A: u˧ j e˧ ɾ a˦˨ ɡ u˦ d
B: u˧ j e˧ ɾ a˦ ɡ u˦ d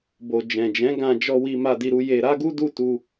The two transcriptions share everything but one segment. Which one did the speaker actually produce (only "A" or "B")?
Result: B